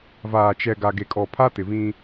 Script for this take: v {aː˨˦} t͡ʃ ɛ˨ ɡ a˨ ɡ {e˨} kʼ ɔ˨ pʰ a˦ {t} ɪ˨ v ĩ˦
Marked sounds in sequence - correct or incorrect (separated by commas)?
incorrect, correct, correct